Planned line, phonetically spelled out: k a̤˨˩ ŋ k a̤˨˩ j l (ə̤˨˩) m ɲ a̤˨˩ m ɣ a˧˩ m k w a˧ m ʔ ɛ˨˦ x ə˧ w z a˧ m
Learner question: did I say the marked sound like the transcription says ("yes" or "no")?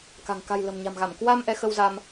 yes